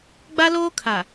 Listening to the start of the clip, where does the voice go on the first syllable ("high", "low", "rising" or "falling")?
high